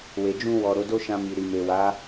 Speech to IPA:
w e˨ d͡ʒ ũ˧ w ɔ˨ ɾ o˨˦ d o˦ ʃ ã˧ m i˨ ɾ i˨ m e˨ w a˨˦

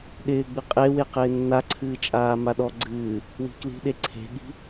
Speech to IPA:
ɗ ɪː ɡ͡b ɨ qʼ e w e q ɪː nː a ǀʰ ɨː t͡ʃʼ aː m a ɗ ɔ ɡ͡ǀ ɨː | w i̤ k l i̤ ɗ e ǀʰ e̤ ɠ i̤

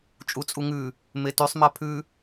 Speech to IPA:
t͡ʃʼ u t͡sʼ u ŋ ʉ | m e t y sˤ m a pʰ ʉ

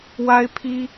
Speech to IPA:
w a˥ ɪ̯ pʰ i˥

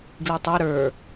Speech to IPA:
ɡ l i tˤ ɛ ɾ ə˞

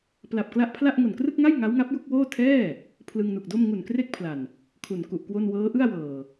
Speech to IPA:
p l a˨˩ p̚ k l a˦˥ ʔ pʰ l a˥˩ ʔ ŋ o˨˩ n k r ɯ˥˩ k̚ ŋ a˥˩ j ŋ a˦˥ w ŋ a˦˥ p̚ j u˥˩ k̚ w oː˥˩ tʰ ɛː˥˩ | pʰ l ɯ˧ ŋ n u˨˩ k̚ d o˥˩ m ŋ u˨˩ n k r e˥˩ k̚ pʰ l a˨˩ n | kʰ u˨˩ n k u˨˩ ʔ k w o˥˩ n w ɤː˦˥ ʔ ɯ˥˩ a̯ w ɤː˨˩

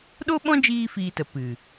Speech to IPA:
ɗ o˦ ɓ ɔ̃˦ d͡ʒ iː˦ f iː˧ t ə˨ p ɨ˨

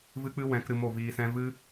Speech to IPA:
v ɨ˦ k͡p ɨ˦ w ɛ̃˨˦ k ɾ ɨ˧ m o˦˨ v iː˧ s ɛ̃˦ v ɨ˦

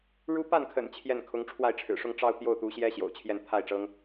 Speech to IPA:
ɻ u˥ p a˥˩ n kʰ ə̰˨˩ n t͡ɕʰ j ɛ˥˩ n kʰ ʊ˧˥ ŋ ʈ͡ʂʰ w a˥˩ ɪ̯ ʈ͡ʂʰ ɻ̩˨˩ ʂ ʊ˥˧ ŋ ʈ͡ʂ ɑ˥˧ ʊ̯ t̪ j o˥˩ ʊ̯ t̪ u˧˥ ɕ j ɛ˥ ɕ j o̰˨˩ ʊ̯ t͡ɕʰ j ɛ˥˧ n t̪ʰ a˥˩ ɪ̯ ʈ͡ʂ ɤ˥ ŋ

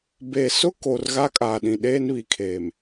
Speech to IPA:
b e˨ s ʊ˦ k o˨ r ɣ a˦ kʼ aː˨ ɗ ĩ˨ ɗ eː˦ n β i˨ kʰ eː˨ m

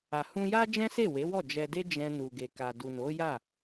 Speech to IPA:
a˨ h ũ˧ j a˦ d͡ʒ ɛ̃˦ s e˦˨ w e˨˦ w ɔ˦˨ d͡ʒ ɛ˧ d e˦ d͡ʒ ɛ̃˧ n u˨ ɡ e˨ k a˨ d u˨ n o˨˦ j a˦˨

